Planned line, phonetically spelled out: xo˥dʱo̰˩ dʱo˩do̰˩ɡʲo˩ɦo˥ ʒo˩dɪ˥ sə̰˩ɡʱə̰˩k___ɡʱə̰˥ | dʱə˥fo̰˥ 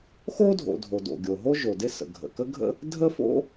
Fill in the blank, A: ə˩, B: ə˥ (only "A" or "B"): B